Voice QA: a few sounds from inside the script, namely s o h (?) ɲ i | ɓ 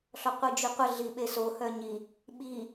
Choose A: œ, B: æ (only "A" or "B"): A